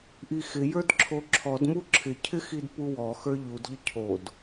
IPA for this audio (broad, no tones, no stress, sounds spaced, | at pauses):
ʔ i x ɪ j ə˞ d ǁʰ o ǁʰ ɔ d m u ǁʰ ɪ cʰ ɪ x i d p u w ɔ x ə˞ ʎ u d ʎ ə cʰ o d